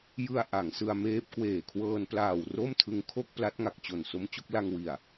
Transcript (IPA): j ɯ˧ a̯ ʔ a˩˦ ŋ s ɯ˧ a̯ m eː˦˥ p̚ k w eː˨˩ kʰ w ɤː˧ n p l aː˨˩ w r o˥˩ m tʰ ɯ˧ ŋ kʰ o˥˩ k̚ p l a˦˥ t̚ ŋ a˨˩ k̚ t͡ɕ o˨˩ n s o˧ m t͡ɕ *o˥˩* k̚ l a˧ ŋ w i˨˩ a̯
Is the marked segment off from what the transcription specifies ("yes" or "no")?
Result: no